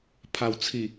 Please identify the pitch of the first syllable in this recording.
low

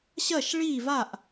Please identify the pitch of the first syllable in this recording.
falling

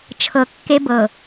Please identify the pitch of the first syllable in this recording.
low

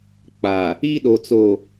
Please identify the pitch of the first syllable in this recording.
low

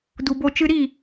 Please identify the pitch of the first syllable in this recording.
low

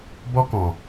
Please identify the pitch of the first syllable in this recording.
high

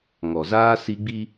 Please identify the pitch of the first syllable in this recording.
low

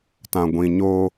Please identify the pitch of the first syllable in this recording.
low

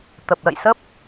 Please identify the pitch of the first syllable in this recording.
low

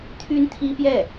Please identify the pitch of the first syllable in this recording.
high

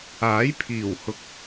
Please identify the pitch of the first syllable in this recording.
rising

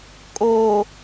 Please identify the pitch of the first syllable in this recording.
low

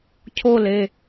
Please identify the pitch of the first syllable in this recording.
falling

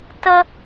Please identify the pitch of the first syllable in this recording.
high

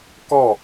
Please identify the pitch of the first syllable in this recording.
falling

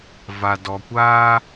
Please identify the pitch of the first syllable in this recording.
low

